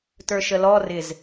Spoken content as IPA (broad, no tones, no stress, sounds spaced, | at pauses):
t ə˞ ʃ ə l ɔ r ɪ z